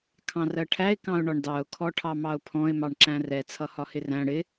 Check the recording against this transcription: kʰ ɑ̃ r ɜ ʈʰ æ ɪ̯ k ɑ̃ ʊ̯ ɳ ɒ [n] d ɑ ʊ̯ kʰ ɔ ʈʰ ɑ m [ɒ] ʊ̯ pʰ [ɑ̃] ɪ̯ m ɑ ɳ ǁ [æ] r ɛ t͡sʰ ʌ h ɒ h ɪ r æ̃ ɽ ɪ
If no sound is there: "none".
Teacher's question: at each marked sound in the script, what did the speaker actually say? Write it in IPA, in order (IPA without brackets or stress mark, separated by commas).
ɳ, ɑ, ɔ̃, æ̃